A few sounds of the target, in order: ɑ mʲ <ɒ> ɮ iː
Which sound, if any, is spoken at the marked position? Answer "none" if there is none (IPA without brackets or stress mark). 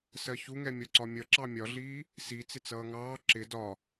ɒ